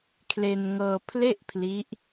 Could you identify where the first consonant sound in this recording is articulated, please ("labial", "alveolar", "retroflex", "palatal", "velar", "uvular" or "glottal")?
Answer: velar